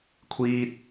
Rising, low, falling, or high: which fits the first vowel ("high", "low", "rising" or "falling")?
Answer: high